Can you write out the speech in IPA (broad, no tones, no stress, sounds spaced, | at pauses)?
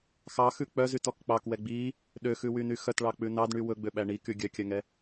x ɑ x ʉ k͡p œ z y t ɔ k k͡p ɑ k w ɛ ɡ͡b i | ɗ ø x ʉ w y n y x œ t ɭ ɑ k͡p ʉ n ɑ d ɳ y w ɵ ɡ͡b ø ɓ æ ɳ i k y ɡʲ œ kʲ œ ŋ ɛ